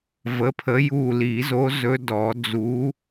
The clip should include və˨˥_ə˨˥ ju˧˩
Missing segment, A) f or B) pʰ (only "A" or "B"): B